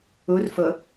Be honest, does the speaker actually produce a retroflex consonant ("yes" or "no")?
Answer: no